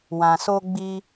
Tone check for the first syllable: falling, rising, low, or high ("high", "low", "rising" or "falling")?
low